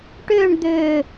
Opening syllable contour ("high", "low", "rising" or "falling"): falling